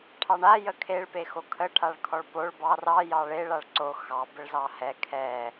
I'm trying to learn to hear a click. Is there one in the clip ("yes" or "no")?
yes